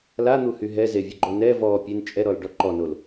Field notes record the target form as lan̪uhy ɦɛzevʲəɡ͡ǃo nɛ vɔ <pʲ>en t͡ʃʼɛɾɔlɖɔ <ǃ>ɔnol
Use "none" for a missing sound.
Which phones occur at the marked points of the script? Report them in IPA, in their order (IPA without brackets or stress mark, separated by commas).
pʲ, ǃ